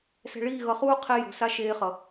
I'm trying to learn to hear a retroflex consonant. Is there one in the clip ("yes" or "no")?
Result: yes